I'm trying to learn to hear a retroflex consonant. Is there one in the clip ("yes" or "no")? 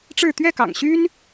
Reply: yes